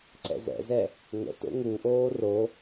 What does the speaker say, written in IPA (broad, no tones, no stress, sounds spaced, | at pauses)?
ǀ ɛ̰ z ɛ̰ z ɛ | ŋ ə̰ t o̰ ŋ u ʔ oː r o